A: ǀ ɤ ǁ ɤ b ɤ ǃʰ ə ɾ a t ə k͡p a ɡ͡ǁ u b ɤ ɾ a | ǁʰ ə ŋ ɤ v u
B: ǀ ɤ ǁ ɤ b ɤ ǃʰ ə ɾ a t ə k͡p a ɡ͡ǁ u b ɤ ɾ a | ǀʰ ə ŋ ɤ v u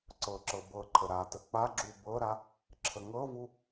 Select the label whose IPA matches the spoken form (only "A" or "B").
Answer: A